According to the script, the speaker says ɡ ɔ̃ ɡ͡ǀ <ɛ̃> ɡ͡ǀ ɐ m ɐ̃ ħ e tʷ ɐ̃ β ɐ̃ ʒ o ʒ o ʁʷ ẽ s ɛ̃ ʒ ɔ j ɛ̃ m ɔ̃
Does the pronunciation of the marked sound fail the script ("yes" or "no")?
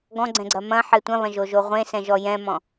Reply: no